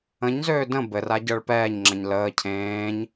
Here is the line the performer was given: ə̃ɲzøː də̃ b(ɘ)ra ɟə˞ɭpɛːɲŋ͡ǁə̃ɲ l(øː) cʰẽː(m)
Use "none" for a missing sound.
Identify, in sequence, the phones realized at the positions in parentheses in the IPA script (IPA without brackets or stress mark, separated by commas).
ɘ, əː, ɲ